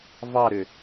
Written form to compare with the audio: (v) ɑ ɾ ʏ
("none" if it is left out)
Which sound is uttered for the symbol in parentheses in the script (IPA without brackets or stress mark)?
v